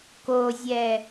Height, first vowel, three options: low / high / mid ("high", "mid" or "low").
mid